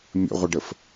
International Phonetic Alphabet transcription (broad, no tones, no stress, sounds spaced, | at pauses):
mʲ ə̰ ʁʷ ə ɖ ə f